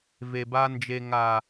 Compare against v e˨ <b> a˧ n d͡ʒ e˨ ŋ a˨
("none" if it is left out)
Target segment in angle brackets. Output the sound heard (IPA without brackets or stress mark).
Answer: b